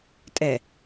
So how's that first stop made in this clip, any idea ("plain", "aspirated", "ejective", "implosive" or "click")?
ejective